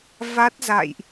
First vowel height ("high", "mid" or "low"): low